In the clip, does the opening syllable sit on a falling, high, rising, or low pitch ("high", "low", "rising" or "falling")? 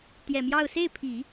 low